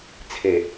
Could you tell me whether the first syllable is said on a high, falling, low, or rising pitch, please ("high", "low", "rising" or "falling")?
low